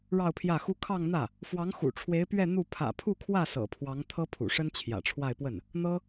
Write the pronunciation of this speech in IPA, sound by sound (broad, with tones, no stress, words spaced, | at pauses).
ɻɑ˥˧ʊ̯pʰjä˥˩xu˥ kʰɑ˥˧ŋn̪ä˥˩ | fwɑ˧˥ŋxṵ˨˩ʈ͡ʂʰwe˧˥ɪ̯ pɥɛ˥˧ n̪u˥˩ pʰä̰˨˩pʰu˥˧kʰwä˥˩ sɤ̰˨˩pʰwɑ˧˥ŋ t̪ʰɤ˥pʰṵ˨˩ʂə˥n t͡ɕʰjä̰˨˩ʈ͡ʂʰwa˥˧ɪ̯pwə˥˩n | n̪ɤ˥